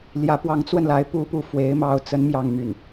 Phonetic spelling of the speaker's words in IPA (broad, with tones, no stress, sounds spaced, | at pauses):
l j ä˧˥ p w ɑ˧˥ ŋ t͡s w ə˧ n l a˧˥ ɪ̯ p u˥ p u˥˩ f w e˥ ɪ̯ m ɑ˥ ʊ̯ t͡s ə˥ n m j ɑ˥˧ ŋ m y˥˩ n